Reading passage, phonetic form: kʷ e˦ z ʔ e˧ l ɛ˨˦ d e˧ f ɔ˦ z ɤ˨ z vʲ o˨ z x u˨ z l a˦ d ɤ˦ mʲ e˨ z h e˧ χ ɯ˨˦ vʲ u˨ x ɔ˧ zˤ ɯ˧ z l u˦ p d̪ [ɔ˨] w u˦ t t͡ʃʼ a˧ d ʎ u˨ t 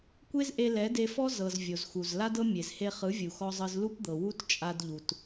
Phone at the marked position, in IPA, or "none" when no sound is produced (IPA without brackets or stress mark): ɤ˨